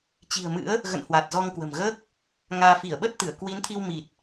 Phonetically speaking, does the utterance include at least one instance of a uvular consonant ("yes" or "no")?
no